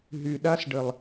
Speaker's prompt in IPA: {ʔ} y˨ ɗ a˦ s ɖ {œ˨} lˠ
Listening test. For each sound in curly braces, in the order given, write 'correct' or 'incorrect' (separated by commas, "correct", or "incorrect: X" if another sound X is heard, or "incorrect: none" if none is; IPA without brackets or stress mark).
incorrect: ɦ, incorrect: ə˨